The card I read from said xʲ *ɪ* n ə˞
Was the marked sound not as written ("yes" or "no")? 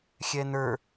yes